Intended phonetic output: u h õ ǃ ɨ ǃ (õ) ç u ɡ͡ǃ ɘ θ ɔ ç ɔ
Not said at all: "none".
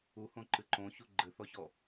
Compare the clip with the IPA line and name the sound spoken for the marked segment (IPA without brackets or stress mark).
õ